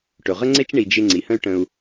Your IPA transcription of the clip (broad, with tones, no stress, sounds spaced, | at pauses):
ʈ ɵ˩ ʁ ə˥ ŋ͡ǀ e˥ t͡ʃ ɳ i˨ d͡ʒ ɪ˦ ŋ͡ǀ i˩ h ə̃˥ y̯ ʈ ə̃˨ u̯